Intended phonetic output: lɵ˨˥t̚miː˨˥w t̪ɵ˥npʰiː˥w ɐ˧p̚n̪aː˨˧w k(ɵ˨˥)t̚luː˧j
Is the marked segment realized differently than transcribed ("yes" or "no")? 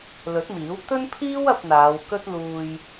yes